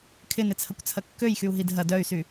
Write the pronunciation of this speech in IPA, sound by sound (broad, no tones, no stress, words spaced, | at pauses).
kʰɪnɪt͡sʰɐkʷt͡sʰɐ kːøjxyu̯ɦid ɦɐ dœy̯sy